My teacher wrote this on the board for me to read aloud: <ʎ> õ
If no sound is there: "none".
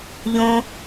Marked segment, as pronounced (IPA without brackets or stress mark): ʎ